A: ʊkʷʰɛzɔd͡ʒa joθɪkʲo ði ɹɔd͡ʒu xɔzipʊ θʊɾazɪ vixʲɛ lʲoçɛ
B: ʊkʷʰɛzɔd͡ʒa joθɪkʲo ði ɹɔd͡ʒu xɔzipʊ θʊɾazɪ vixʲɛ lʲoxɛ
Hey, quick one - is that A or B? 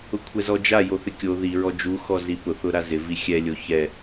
A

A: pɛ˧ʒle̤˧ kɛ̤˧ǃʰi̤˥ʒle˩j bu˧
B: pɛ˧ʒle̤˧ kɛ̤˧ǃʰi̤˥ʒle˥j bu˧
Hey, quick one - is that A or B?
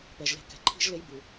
B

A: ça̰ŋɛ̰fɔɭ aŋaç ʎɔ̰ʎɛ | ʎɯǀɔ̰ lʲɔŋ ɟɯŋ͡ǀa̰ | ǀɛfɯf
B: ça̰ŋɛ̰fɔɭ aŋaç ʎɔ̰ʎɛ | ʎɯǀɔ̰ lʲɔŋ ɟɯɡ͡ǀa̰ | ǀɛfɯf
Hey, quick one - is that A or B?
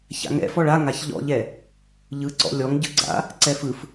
B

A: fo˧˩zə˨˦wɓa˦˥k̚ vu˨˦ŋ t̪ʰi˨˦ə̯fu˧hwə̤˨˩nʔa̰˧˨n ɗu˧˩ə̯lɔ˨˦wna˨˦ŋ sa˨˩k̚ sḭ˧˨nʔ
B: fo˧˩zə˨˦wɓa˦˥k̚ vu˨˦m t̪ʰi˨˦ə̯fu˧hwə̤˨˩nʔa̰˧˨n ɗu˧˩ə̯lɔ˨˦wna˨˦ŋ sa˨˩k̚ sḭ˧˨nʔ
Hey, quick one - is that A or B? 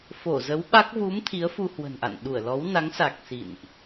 B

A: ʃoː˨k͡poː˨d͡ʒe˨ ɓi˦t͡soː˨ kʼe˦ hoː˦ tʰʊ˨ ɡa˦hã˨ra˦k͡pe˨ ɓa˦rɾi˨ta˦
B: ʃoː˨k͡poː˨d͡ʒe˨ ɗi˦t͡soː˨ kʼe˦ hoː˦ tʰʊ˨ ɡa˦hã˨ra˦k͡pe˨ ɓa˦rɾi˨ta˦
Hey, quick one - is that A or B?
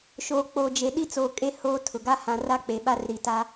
B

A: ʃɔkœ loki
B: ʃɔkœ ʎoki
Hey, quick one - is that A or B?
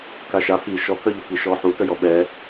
B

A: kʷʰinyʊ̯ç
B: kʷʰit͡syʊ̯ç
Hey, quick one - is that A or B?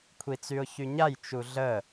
B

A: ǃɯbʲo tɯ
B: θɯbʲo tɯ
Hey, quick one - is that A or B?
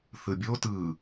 B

